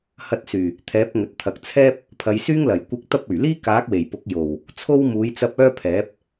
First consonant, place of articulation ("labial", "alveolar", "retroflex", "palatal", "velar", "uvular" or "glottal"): glottal